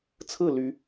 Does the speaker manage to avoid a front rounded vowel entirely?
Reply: no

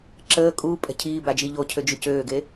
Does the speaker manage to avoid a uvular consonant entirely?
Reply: yes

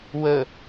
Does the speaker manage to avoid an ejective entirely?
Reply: yes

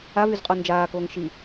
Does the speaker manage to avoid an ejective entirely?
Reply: no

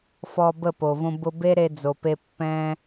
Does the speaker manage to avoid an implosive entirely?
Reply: yes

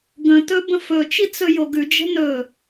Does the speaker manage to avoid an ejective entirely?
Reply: yes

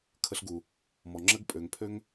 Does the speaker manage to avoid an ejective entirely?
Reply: no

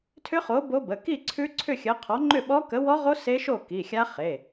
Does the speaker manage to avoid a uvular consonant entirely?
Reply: no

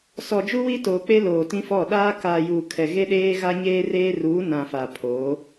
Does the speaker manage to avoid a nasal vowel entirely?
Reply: no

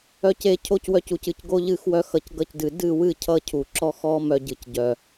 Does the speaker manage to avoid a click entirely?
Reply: no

